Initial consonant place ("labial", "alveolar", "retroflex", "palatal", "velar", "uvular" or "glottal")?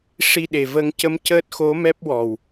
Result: retroflex